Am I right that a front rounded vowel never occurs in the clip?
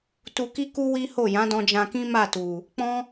yes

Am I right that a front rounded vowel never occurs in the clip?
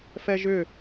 no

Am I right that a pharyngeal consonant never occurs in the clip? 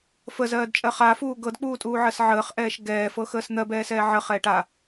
no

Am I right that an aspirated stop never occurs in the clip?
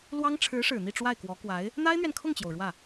no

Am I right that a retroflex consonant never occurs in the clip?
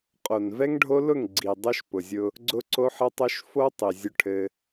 no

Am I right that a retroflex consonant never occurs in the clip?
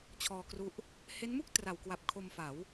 yes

